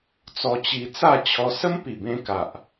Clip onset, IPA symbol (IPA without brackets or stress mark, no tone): t͡s